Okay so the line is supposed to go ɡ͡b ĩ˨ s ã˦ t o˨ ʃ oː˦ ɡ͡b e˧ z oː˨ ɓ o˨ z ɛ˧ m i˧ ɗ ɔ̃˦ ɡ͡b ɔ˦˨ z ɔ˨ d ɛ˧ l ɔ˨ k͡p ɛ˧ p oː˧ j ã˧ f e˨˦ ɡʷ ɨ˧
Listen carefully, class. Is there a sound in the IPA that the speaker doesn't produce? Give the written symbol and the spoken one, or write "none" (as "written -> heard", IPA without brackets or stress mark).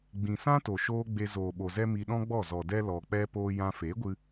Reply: none